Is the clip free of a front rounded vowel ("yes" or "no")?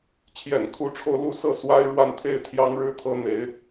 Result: yes